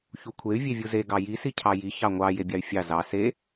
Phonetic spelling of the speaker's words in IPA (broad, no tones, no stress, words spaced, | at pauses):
çukʷʰey̯ vʲevʲuze ɡɑji sicʰɑji çɑŋʷɑ jebʲɑy̯fʲɑ zɑ se